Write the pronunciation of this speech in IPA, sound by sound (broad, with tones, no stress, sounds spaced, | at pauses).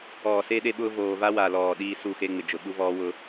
ɔː˨ s e˦ ɗ e˦ ɓ ʊː˦ v oː˨ v a˦ w a˨ l ɔː˨ ɗ iː˦ s u˦˨ x e˦ ŋ͡m ɪ˨ d͡ʒ ʊ˨ ɓ u˦ v ɔː˦ w ʊ˦